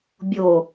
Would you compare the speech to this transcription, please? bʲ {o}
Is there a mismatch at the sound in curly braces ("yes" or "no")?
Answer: no